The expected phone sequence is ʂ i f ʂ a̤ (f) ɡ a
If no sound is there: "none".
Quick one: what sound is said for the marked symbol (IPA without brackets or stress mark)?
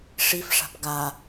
p